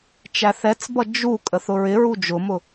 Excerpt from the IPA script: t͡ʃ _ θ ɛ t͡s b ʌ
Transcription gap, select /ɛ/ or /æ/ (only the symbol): æ